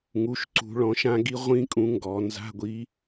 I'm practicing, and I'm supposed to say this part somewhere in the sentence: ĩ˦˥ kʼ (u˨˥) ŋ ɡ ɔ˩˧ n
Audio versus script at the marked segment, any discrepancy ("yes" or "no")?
yes